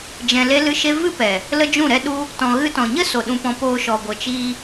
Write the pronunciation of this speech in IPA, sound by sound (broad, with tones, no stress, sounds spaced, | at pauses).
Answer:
d͡ʒ ɛ̃˧ l e˦ l ɨ˦ ʃ e˦ v ɨ˦ p ɛ˨ | l ə˦ d͡ʒ ũ˦˨ ɾ ɛ˦ ɗ u˦ | t ɔ̃˨ ɣ ɨ˧ t ɔ̃˨ ɲ ə˦ s o˨ ɗ ũ˧ p ɔ̃˧ p oː˧ ʃ ɔ˨ ɡʷ ə˨ t͡ʃ iː˧